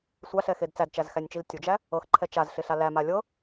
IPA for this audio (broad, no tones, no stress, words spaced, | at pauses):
sʷaɬɛxed t͡sædt͡ʃæzxænʲt͡ʃil tʲud͡ʒæ | ɤxǃʰɛ t͡ʃazɬɪɬa læma lʲɤ